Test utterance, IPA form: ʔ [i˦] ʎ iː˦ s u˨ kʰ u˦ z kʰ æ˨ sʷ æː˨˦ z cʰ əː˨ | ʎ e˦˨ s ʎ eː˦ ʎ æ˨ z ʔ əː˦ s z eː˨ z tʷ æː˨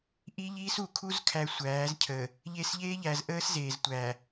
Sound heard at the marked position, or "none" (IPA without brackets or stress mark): i˦